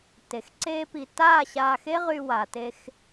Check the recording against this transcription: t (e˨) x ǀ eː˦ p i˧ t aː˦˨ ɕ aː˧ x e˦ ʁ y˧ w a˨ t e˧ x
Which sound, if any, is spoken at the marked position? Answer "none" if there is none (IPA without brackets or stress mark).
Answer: e˨˦